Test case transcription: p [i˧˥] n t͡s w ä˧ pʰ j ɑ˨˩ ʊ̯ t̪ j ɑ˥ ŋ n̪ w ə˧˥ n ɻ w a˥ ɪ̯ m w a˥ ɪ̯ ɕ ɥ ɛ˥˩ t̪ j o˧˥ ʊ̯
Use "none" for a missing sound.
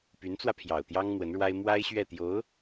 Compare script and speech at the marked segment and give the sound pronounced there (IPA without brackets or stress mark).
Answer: y˧˥